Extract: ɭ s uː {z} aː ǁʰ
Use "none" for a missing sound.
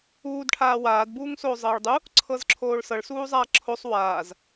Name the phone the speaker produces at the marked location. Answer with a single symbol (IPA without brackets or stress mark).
zˤ